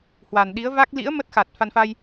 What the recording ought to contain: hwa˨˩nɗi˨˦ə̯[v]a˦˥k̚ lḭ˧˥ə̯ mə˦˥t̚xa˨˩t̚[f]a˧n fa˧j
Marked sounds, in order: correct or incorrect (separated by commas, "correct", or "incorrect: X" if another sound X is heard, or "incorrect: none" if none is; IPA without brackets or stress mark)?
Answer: correct, correct